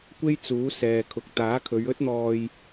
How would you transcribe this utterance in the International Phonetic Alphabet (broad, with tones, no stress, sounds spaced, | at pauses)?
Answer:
kʷ e˥ j t͡s uː˨˥ s ɛː˨ kʰ ʊ˨ k̚ t̪ aː˨˥ kʰ ɵ˨˧ ɥ ɵ˥ t̚ n̪ ɔː˧ j